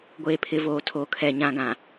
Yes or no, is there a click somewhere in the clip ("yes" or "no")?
no